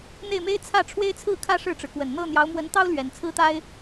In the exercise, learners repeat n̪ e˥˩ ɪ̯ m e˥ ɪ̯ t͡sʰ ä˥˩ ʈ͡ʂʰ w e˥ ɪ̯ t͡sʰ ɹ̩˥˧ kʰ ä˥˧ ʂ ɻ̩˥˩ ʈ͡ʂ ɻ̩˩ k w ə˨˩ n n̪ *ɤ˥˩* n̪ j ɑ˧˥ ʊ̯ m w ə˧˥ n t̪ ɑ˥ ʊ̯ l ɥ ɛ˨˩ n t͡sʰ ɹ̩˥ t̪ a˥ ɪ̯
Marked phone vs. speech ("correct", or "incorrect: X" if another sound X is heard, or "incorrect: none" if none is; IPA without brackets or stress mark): correct